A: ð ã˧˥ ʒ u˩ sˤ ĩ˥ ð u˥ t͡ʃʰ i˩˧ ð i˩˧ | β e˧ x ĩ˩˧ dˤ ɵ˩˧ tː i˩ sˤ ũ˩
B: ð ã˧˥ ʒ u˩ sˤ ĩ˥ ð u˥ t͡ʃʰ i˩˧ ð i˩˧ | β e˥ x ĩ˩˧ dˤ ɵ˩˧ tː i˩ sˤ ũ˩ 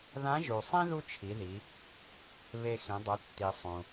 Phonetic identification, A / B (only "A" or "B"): A